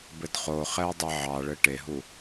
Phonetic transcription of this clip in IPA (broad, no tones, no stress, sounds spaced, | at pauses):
b ɘ d χ o χ ɛ ɐ̯ dˤ e ʕ ɑ ɭ ɘ ʈ e ɦ u